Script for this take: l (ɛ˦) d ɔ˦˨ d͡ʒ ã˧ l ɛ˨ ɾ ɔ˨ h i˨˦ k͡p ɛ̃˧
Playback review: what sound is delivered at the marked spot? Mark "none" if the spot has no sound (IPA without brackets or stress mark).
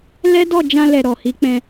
ɛ˦